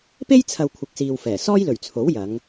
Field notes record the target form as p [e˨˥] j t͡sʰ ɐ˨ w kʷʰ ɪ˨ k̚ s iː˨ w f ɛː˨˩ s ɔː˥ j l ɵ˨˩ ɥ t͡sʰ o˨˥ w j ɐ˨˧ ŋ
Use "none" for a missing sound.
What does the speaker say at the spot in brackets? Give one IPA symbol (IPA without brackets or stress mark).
e˥